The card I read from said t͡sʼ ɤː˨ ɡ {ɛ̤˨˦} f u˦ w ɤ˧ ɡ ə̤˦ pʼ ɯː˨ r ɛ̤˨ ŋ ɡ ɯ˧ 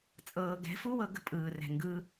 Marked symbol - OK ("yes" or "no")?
yes